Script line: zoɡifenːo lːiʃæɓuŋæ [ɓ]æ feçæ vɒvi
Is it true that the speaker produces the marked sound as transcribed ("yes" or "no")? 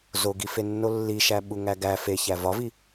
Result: no